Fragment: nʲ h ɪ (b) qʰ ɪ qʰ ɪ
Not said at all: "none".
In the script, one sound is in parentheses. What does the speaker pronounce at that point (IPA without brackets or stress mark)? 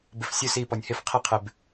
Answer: f